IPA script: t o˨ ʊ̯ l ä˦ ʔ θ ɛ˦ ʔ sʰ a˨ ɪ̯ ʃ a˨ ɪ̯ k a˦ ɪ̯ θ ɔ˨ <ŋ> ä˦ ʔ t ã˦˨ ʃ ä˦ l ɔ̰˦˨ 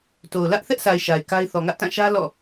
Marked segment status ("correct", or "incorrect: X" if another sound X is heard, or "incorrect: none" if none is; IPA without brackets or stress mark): correct